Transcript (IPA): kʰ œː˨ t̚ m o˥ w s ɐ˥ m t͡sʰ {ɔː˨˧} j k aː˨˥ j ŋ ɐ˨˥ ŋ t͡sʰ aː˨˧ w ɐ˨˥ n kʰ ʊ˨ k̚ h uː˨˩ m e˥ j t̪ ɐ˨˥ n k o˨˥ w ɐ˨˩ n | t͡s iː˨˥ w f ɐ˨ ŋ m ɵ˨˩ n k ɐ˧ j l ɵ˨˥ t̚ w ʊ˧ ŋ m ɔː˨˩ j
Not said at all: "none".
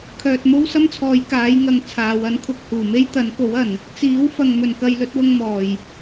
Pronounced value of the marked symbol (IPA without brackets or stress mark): ɔː˨˧